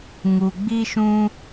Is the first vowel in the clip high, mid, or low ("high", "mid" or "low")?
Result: high